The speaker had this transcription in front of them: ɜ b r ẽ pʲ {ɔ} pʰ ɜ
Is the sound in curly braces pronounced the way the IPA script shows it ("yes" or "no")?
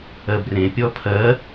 yes